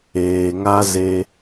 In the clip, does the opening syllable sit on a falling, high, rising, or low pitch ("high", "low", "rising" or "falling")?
low